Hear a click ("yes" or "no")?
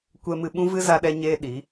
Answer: no